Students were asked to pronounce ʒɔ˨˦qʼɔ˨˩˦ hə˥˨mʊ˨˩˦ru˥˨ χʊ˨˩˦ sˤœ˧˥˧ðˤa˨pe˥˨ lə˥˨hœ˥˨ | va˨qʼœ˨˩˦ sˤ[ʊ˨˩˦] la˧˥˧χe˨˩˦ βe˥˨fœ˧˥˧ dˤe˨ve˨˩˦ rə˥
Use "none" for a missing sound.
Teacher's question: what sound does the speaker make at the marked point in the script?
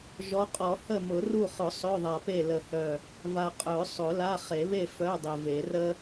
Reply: ʊ˨˩˦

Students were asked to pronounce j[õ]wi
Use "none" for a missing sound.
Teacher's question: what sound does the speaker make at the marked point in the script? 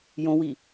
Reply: õ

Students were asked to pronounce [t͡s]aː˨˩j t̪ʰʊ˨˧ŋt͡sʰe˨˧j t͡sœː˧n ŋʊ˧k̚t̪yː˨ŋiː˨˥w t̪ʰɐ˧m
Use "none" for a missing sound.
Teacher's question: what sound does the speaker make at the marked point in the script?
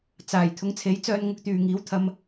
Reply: t͡s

